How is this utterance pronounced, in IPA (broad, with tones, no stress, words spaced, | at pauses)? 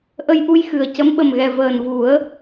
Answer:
ʔə˧jʔu˧j xɨ˨˩ə̯ cə˧˥mɓə˨˩mɣɛ˨˩ vəː˨˩nvu˨˩˦ə̯